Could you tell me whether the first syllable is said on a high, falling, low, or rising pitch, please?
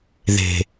low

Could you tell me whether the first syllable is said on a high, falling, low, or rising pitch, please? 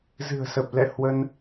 low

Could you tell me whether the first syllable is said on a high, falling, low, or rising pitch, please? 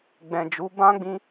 low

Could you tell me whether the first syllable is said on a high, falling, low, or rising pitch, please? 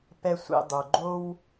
high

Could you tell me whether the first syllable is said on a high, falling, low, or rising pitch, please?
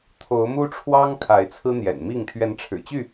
rising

